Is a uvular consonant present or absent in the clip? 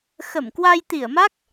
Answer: absent